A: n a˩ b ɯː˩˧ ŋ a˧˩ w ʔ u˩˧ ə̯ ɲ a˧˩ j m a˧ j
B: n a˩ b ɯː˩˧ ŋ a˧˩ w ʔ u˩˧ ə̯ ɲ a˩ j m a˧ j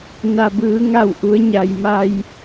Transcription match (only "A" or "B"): B